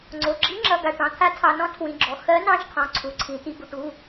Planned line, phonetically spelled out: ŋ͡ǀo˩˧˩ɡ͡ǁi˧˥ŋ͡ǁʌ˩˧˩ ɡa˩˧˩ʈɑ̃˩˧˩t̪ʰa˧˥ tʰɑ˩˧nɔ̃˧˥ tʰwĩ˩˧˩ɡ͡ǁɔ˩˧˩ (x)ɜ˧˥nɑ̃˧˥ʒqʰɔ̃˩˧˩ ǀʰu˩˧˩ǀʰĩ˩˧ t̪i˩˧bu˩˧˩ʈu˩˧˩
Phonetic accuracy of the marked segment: correct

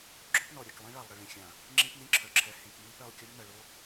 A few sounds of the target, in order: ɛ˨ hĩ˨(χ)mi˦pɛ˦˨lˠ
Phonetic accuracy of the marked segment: incorrect: k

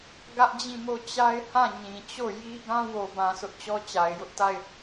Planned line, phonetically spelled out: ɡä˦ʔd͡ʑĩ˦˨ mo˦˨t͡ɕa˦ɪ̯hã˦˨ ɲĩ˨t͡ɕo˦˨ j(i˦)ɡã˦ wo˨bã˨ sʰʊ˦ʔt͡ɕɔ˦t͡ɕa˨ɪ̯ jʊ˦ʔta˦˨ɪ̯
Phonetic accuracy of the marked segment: correct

